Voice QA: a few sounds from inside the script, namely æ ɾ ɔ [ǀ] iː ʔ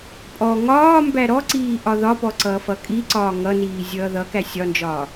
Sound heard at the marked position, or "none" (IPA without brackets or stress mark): ǀ